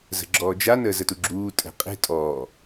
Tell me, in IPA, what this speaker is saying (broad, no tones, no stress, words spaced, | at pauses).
zə̤ɡ͡ǁɔːd͡ʒan əːzətuɡ͡ǁuː tʼɛ̤qʼe̤ tʼɔː